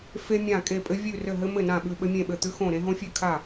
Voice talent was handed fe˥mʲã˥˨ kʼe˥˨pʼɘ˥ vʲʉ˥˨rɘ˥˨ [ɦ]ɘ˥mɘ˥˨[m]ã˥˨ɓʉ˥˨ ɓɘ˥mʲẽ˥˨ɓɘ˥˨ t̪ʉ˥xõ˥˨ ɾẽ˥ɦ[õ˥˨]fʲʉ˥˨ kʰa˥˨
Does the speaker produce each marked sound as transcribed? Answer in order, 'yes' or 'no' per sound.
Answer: yes, no, no

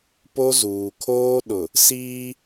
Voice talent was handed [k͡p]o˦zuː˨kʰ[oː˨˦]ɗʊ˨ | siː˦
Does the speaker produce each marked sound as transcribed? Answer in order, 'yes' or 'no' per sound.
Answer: no, no

